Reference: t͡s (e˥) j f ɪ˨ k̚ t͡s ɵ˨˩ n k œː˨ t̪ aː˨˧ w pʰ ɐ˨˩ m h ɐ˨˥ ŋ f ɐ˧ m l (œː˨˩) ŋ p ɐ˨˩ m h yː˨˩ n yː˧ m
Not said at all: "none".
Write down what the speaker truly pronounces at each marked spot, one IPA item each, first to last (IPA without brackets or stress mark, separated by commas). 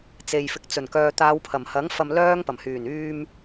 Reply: e˨, œː˥